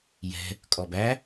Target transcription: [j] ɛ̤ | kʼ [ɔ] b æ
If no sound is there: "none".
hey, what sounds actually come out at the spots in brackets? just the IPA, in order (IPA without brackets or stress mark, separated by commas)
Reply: j, ɔ